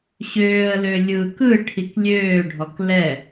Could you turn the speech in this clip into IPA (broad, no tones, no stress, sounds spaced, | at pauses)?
ɕ øː ə̯ l ø lʲ ɯ k ɯ ʈʰ i k lʲ øː ɖʱ ɔ k l ɛ